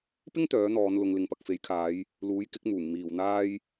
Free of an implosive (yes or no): yes